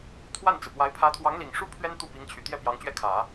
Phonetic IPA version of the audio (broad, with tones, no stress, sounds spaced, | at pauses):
t̪ʰ w a˥˩ n t͡s ɹ̩˩ p w a˧˥ ɪ̯ pʰ ä˧˥ t̪ʰ w ɑ˧˥ ŋ l i˨˩ ŋ ʂ u˥ pʰ ɥ ɛ˥ n t̪ u˥˩ p i˧˥ ŋ t͡ɕʰ y˨˩ t̪ j ɛ˥˩ p j ɑ˧˥ ŋ t͡ɕ ɥ ɛ˥˩ kʰ ä˨˩˦